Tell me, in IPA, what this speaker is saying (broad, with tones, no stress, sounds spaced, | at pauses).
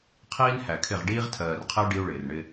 qʰ iː˦ n h æ˨ kʰ ɪ˦˨ ʁ ɖ iː˦ ʁ tʰ ɜː˨ r qʰ ɪ˦ u̯ ɖ i˦ u̯ ɭ ɪː˨ r ɳ ɪ˦